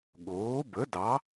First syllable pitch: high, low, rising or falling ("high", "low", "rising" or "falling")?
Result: rising